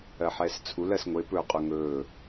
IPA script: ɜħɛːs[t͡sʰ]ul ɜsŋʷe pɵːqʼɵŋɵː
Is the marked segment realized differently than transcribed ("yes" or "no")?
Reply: no